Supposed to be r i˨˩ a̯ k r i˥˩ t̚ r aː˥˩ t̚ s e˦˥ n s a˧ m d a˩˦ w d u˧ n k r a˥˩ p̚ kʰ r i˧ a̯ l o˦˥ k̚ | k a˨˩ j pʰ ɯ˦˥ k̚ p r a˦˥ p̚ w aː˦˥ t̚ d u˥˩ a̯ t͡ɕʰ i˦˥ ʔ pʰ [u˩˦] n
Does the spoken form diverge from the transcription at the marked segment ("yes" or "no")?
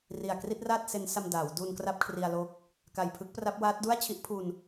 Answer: yes